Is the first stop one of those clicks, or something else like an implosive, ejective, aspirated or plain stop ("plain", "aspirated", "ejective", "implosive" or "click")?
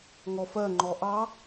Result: click